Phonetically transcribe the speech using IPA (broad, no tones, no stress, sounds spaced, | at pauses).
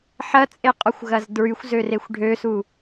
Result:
ħ ɐ t͡sʼ e qʼ ɔ xʷ ɣ ɐ z d ɹ y xʷ z ø r e xʷ ɖʱ ø s u